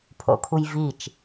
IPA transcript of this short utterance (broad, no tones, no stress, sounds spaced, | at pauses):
pʰ o̰ kʰ u j v i t͡ʃ